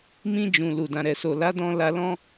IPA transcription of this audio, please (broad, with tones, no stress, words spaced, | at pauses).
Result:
mĩ˧ d͡ʒũ˨ lu˨dã˨ɾɛ˨so˨ la˨˦dɔ̃˧ la˧lɔ̃˦